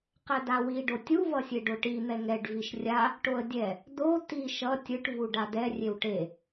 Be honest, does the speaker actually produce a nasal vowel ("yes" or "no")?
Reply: no